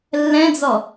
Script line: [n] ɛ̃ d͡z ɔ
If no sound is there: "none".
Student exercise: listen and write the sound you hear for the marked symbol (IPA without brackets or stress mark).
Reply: lː